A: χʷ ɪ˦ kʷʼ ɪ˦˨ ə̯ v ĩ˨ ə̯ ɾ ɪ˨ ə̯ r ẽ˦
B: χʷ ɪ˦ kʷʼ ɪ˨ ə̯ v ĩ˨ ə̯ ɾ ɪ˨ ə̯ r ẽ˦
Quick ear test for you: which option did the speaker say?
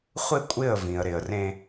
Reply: A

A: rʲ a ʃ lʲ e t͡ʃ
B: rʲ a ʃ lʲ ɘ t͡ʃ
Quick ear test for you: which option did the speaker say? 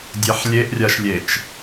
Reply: A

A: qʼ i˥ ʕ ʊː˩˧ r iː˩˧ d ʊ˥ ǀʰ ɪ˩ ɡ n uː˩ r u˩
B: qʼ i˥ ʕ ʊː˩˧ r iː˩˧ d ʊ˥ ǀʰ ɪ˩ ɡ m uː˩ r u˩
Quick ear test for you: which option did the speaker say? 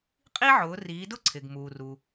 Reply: B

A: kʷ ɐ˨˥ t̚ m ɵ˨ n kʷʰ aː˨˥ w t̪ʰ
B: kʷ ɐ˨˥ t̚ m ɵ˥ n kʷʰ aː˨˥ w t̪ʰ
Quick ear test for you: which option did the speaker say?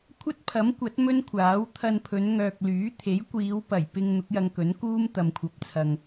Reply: B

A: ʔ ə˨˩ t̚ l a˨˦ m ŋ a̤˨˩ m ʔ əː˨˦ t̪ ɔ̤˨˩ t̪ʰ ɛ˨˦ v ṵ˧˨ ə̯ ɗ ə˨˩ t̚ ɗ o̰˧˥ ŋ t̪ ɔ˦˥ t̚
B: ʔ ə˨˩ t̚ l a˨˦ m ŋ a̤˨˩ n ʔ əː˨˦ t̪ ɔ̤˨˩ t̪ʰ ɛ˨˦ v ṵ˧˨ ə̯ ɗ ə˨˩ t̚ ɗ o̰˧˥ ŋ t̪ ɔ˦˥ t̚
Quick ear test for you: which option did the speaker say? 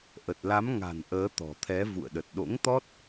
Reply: B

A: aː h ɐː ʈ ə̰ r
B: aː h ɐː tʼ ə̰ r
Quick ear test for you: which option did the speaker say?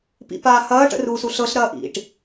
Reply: A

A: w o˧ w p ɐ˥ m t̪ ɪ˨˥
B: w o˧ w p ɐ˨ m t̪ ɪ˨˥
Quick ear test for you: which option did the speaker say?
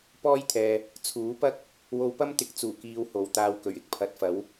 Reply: A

